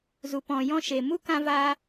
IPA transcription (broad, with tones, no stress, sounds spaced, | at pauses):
z u˨ p ɔ̃˨ j ɔ̃˧ ʃ e˨ m u˦ k ã˧ v aː˧